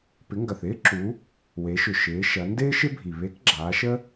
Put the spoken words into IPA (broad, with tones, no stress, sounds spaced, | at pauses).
p ɪ˩˧ ŋ ɡ ɐ˩ θ ɪː˥ ǁ u˩˧ | w e˩˧ ʃ ʏ˩ ʃ ɪː˩˧ ʃ ɐ˩˧ n d ɪː˥ ʃ ɪ˥ bʱ i˩ β e˧˥ k ɡ͡ǁ aː˩˧ ʃ ə˥